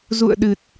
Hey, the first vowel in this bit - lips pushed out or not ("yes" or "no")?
yes